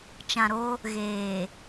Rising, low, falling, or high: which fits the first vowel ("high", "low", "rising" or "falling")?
low